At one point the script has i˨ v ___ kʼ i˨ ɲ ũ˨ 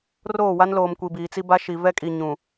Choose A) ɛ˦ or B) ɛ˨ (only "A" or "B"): A